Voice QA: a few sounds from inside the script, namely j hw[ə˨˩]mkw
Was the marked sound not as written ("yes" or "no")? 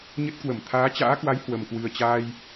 no